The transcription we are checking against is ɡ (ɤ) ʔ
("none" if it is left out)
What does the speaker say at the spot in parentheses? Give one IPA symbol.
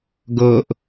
ɤ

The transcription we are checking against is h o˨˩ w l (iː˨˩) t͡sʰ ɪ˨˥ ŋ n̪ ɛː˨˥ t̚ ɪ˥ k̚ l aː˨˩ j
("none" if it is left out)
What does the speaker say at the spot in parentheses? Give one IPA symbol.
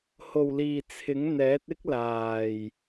iː˨˩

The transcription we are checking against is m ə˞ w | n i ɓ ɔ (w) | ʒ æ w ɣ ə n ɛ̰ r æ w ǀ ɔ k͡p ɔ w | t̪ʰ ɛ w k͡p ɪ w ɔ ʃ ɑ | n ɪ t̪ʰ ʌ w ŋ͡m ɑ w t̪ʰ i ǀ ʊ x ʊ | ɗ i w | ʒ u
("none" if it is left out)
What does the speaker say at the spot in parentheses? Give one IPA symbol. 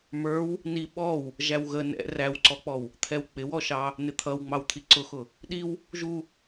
w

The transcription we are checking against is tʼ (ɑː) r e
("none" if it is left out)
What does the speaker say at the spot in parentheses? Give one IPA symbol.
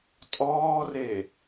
ɔː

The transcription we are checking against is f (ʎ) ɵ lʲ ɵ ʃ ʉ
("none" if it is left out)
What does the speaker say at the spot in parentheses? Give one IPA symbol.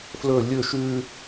l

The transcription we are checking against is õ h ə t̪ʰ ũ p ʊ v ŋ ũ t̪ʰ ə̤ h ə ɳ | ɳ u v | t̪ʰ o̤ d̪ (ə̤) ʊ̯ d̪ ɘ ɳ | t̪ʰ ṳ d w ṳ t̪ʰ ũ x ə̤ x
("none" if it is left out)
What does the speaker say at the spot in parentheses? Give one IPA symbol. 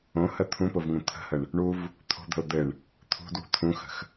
ə̤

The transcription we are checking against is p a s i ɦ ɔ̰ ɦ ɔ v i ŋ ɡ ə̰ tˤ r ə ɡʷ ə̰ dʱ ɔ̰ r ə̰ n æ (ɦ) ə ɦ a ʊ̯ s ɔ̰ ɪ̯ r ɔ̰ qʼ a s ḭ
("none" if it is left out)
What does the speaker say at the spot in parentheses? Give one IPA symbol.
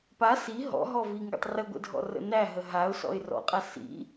ɦ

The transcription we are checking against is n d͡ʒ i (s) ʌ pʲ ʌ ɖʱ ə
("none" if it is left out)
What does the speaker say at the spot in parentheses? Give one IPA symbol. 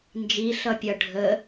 ɬ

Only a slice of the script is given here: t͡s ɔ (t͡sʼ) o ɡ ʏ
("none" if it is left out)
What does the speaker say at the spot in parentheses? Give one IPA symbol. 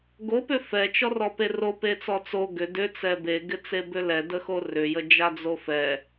t͡s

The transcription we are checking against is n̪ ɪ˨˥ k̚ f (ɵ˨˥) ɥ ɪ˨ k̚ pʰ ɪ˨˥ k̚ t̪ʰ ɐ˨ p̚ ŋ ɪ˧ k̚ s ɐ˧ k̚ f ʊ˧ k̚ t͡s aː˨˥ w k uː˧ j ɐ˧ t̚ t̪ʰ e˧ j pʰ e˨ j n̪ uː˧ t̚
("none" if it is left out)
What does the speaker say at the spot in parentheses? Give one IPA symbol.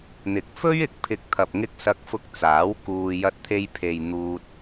ɵ˥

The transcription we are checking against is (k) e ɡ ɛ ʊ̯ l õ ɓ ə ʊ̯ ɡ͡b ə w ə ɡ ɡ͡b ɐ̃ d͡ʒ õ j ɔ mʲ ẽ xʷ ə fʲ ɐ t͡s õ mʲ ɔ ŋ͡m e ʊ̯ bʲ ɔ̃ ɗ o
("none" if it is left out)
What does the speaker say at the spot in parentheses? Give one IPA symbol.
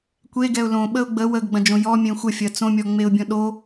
kʷ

